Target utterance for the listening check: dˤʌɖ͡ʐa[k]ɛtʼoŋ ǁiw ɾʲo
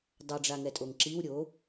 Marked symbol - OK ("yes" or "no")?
no